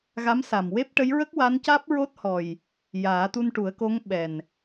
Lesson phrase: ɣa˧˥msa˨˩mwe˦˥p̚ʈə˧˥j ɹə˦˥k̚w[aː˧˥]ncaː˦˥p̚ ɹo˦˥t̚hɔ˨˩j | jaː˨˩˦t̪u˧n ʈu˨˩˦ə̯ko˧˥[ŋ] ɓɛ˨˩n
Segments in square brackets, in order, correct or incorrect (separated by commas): incorrect, correct